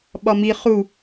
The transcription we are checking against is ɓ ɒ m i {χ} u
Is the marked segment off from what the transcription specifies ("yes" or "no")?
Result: no